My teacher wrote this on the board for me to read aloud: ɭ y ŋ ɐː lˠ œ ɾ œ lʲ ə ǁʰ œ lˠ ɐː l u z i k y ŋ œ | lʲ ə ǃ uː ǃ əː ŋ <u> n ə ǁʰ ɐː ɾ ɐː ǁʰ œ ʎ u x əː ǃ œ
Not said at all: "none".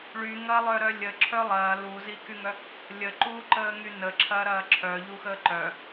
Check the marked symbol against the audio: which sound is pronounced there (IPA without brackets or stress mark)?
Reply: y